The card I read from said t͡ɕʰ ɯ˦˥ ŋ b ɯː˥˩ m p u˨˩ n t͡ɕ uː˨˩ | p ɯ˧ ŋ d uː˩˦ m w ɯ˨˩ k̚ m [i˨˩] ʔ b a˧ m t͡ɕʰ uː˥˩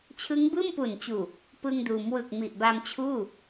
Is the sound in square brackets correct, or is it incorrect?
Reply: correct